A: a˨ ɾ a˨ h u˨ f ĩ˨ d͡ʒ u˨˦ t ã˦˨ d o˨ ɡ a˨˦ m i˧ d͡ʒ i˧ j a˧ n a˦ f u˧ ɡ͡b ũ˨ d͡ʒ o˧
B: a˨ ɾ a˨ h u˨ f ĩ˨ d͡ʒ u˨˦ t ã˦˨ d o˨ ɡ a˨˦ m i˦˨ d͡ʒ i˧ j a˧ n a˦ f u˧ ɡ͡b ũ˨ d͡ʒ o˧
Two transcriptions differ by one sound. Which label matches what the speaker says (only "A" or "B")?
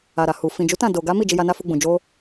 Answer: B